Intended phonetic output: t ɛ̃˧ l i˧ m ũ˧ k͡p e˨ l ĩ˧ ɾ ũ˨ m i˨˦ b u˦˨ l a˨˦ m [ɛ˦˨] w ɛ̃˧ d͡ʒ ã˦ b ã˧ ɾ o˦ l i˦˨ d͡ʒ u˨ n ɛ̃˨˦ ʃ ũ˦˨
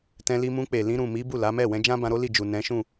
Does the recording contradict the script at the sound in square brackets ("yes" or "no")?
no